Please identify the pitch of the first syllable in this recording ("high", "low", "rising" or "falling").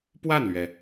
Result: falling